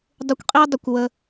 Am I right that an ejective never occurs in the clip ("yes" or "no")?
no